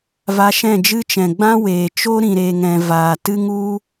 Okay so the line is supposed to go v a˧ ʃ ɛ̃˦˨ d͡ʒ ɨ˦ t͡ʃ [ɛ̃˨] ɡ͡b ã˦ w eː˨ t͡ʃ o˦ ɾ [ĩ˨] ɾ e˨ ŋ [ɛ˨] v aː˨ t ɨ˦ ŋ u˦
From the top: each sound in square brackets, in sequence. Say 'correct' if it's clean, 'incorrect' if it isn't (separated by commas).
correct, correct, incorrect